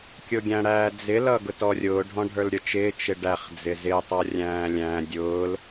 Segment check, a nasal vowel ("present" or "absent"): present